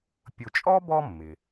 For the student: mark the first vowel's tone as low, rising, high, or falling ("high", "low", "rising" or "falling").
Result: low